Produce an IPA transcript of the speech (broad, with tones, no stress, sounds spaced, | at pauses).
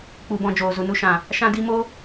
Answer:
k͡p u˨ b ɔ̃˨ d͡ʒ oː˨ z u˨ n u˧ ʃ ã˨ | ʃ ã˧ d i˧ m o˦